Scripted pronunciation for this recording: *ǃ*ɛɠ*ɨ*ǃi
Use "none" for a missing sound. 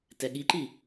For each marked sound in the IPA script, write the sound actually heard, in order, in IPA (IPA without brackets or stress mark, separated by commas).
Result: t, i